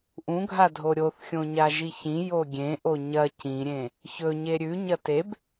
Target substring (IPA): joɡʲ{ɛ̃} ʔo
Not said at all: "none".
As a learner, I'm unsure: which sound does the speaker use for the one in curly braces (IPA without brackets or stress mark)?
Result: ẽ